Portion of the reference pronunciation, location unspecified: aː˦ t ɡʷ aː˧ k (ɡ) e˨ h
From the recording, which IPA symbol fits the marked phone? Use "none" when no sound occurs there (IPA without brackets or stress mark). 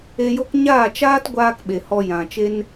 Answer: ɓ